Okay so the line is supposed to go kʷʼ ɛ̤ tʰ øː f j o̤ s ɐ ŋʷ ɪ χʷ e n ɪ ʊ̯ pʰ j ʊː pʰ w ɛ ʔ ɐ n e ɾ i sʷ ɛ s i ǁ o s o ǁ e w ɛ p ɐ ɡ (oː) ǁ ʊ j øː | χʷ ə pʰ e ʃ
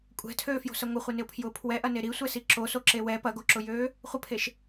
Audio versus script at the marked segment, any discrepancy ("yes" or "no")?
yes